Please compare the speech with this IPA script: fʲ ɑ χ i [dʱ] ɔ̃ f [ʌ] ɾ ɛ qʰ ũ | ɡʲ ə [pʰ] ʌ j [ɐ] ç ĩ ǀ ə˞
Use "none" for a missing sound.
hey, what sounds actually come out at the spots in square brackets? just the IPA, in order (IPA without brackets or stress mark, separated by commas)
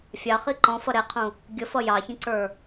ǃ, ʌ, f, ɑ